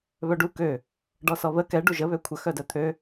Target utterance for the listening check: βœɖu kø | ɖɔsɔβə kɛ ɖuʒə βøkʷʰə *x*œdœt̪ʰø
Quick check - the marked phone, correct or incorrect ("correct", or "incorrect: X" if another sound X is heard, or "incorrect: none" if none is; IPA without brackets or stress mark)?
correct